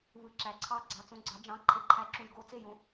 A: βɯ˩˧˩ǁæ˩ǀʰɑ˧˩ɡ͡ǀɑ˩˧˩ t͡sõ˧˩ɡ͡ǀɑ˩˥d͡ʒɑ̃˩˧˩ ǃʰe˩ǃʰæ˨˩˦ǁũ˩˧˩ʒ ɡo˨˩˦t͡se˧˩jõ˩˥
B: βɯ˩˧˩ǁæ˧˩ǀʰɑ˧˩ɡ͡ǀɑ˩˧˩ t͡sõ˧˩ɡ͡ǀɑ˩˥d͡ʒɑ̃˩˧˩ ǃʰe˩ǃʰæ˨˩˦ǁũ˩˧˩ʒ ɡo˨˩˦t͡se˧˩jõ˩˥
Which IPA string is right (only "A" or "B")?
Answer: A